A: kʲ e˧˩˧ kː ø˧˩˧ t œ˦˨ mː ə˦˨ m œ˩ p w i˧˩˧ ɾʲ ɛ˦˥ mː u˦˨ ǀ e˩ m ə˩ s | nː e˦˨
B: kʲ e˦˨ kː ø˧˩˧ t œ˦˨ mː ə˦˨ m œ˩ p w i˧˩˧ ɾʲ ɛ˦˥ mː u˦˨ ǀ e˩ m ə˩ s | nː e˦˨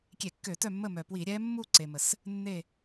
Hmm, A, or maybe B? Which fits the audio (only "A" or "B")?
A